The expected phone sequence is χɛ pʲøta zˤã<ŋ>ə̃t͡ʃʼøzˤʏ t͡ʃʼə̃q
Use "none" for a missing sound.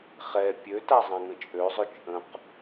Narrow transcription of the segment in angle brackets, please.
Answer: ŋ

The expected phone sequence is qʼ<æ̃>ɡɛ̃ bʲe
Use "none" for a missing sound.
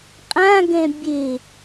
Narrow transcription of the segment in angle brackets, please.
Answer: ã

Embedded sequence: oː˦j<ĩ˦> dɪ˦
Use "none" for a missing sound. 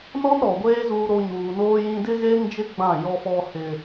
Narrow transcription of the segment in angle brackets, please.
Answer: ĩ˦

